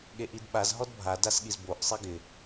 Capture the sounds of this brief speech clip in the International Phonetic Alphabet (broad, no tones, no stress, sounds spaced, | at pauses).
ɠ e ʔ i d ɓ a z ɦ ɔ d bʱ a d a s ɠ i z b o ʔ sˤ i ɡ ɪ